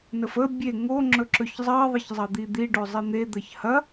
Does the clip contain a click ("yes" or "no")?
yes